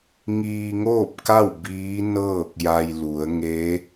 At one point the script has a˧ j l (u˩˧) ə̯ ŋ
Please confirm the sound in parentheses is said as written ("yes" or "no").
yes